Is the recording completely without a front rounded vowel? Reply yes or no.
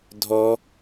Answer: yes